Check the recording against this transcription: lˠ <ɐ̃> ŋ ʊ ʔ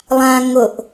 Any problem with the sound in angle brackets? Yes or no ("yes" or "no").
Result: yes